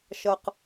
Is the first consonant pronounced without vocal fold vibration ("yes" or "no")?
yes